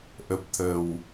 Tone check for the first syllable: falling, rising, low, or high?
low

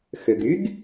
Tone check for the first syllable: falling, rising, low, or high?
low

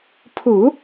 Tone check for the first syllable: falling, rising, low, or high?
low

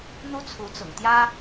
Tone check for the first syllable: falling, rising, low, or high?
high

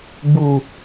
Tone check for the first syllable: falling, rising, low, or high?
low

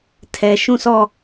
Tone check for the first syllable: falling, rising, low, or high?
low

